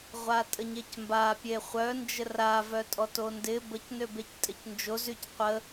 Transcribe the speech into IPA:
ʁʷ a tʼ ə ɲ e c m b a pʲ e χʷ œ n d͡ʒ ə r a v œ tʼ ɔ t o n d ɪ b ə c n ø b e c tʼ ɪ c n d͡ʒ o z y c qʷ ə

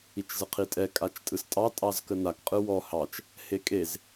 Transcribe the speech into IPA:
i t͡ʃ z ə qʰ i tʼ ɛ kʼ a t͡ʃ tʼ ɯ s tʼ ɑ tʼ ɑ z k ə n a k qʼ ɯ w ɔ h ɑ t͡ʃ | h e kʼ e z

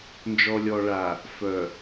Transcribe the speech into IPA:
n d͡ʒ ɔ˨ lʲ ɔ˨ ɭ a˨ | f œ˨

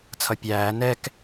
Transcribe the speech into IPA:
t͡sʰ ʌ pʲ æː n ɛ k

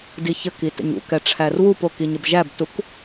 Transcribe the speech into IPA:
d i ç ə k i t ə̰ ɲ ṵ k ɛ ʈ͡ʂʰ æ r w u p o k i ɲ ə b ʒ æ b t u k

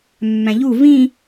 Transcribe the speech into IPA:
mː æ̃ ʎ u v ĩ

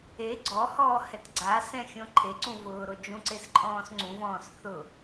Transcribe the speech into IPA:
e ɡ͡ǀ ɔ h ɔː h ɛ t ɡ͡ǀ a s ɛ̃ xʲ õ ǃʰ e ǀ ũ v ʊː ɾ o d͡ʒ ũ ǀ e s ǃʼ ɔ̃ː s ŋ͡ǀ ũ v ɔ̃ː s θ ʊ

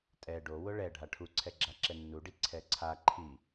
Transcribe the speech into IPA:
tʼ ɛ ɖ o w ʊ ɭ ɛ ɖʱ a ʈʰ u ǀʰ ɛ ɡ͡ǁ a ǁ ɛ nː u ɖ i ǀʰ ɛ ǀʰ a ǃʰ i

